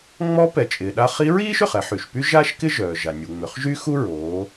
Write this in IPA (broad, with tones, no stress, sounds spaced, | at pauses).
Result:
ŋ͡m ɔ˧˥ p ɛ˩ t͡ʃʼ ɪː˩ ɗ a˧ χ i˧˥ ɹ iː˥ ʃ ø˩ χ ɛ˧ ħ y˩ ʃ p y˥ ʒ aː˥ ʃ k ɪ˥ ʒ œː˩ ʒ a˩ nʲ u˩ ŋ͡m ʏ˩˧ χ ʒ y˥ x u˥ ɹ oː˩˧